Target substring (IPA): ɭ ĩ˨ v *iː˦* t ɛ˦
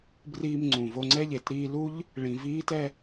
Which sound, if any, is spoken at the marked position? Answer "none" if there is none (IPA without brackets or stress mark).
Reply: iː˦